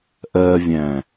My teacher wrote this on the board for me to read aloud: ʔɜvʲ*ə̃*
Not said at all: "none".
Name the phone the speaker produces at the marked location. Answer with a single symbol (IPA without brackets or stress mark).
æ̃